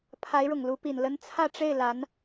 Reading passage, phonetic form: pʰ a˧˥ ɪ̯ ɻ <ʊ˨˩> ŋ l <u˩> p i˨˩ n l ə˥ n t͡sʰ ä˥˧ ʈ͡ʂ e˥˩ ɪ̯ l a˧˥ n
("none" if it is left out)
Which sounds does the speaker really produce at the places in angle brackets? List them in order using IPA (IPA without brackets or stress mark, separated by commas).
ʊ˨˩, u˧˥